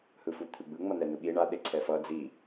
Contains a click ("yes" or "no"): yes